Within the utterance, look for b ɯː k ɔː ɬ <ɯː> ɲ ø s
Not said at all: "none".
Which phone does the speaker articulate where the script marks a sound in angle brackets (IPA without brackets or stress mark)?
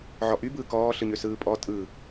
ɯ